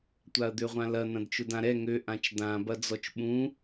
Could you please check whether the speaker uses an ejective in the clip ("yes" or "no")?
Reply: no